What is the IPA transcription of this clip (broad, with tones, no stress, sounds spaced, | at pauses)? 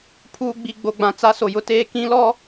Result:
pʰ uː˨ ɡ͡b i˨ ɡ͡b o˨ ɡ͡b ã˨ t͡s a˦ s o˨ j ʊ˦ t eː˦ k ĩ˦ l ɔ˦